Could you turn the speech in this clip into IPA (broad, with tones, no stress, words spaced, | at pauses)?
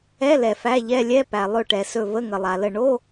ɛ˧˥˧lɛ˩ fæ˧˥˧ʎɛ˧˥˧ lʲɛ˧˥˧ pæ˩lˠɵ˧˩ʈɛ˩ sɵ˧˩və˧˥˧ŋə˩ lˠa˩lə˧˩ ɳo˧˥˧